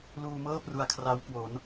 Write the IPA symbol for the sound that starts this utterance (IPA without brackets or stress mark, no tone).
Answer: l